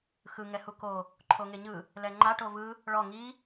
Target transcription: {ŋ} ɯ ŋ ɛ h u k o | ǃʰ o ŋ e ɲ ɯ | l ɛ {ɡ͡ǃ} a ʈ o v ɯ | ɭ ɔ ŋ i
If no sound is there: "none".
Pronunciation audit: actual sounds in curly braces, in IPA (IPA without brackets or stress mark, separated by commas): x, ŋ͡ǃ